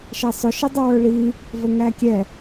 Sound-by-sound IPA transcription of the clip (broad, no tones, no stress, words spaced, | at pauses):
ʃɛsˤʊ ʃɪdˤɪwə˞ɭi | vəŋækʲɛ